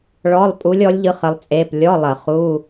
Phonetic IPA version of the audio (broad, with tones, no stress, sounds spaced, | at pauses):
ɭ ɔ˧˥˧ lˠ pʼ u˧˥ lʲ ɔ˧˥ lʲ ʎ ɯ˧˥ χ ə˧˥ lˠ t͡sʼ e˧˥˧ p lʲ ɔ˧˥˧ lˠ ə˧˩˧ χ u˧˥˧